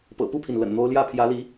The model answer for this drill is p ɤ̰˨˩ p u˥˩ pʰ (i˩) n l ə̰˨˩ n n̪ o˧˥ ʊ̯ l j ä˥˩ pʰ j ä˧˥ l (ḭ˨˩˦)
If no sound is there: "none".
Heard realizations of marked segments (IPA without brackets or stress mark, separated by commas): i˩, i˧˥